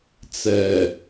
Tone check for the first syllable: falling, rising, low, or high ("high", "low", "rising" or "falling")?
low